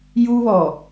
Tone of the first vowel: high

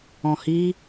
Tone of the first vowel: low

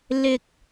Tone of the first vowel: high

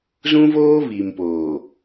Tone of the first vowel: high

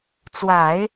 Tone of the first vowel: low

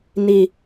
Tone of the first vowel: low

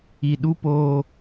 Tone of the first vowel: low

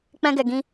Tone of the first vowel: high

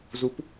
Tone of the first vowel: rising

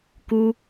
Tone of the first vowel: high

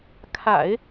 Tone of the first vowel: low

